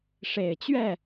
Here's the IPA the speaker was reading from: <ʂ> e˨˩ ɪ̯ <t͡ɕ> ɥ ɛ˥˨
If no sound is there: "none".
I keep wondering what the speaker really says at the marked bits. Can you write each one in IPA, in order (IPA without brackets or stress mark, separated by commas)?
ʂ, t͡ɕ